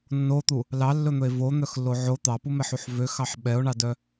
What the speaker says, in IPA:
nː o t̪ u | l ɑ lː ɵ n̪ ɵ e̯ v o n̪ œ x lː o ʕ o t̪ ɑ p u m ɛ ħ u ħ v ø x ɑ ħ ɓ ɛ o̯ ɳ ɑ d œ

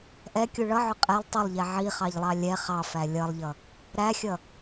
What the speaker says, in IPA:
ʔ ɛ kʲ u ɭ ʌ ʕ ʊ qʼ ɛ lˠ tˤ ʊ lˠ ʎ ɛ ʕ i χ ɑ ʎ lˠ ɑ lʲ ɛ χ ɑ f æ lʲ ʌ lˠ ʎ ʌ | ɾ æ xʲ ʌ

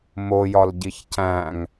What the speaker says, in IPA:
m o j ɒ l ɟ i ç c æ̃ ŋ

